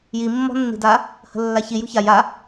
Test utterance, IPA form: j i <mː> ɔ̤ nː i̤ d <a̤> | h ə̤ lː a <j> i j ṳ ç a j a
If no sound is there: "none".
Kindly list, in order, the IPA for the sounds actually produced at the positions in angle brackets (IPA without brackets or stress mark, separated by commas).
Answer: mː, a, ç